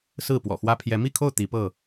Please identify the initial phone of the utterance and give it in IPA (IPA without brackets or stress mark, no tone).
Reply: s